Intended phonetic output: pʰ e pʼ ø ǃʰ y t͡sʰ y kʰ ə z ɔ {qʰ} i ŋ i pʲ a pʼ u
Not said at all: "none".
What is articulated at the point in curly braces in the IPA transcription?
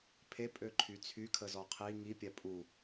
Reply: qʰ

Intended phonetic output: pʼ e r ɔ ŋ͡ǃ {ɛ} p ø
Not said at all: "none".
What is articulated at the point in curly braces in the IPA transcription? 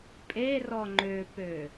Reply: ø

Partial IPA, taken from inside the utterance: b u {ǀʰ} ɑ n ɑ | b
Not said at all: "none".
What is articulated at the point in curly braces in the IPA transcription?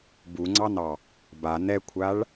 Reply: ŋ͡ǀ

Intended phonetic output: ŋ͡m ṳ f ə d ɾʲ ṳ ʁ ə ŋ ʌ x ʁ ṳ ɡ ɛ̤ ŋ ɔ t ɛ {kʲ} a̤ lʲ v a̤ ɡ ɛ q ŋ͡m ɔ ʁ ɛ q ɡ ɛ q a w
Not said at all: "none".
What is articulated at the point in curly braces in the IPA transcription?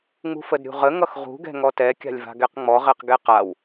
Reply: kʲ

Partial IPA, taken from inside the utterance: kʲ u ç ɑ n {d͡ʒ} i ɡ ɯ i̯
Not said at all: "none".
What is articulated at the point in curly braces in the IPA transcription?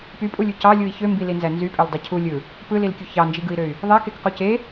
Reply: d͡ʒ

